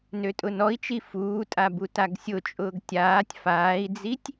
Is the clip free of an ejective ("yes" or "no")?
no